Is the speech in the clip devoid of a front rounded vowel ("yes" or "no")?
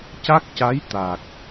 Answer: yes